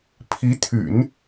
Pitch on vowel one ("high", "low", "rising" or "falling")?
rising